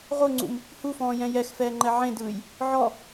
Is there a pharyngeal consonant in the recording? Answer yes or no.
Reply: yes